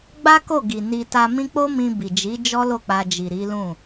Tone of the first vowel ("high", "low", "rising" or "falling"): high